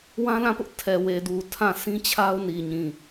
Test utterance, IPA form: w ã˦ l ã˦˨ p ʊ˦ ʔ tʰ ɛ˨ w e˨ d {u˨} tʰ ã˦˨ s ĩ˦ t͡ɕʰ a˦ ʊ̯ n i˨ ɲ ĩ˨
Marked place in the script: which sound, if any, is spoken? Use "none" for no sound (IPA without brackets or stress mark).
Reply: u˨